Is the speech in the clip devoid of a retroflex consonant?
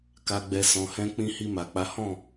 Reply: yes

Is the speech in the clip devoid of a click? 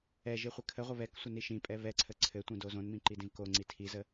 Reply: no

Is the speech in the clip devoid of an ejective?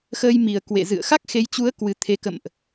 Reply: yes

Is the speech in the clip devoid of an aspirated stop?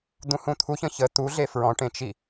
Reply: no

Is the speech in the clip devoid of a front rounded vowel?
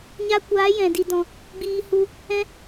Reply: yes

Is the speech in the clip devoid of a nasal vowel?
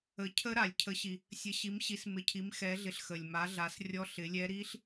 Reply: yes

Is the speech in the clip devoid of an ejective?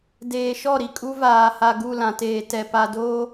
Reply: no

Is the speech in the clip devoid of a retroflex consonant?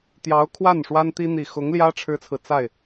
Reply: no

